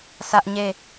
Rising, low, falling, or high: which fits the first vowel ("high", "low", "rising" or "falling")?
high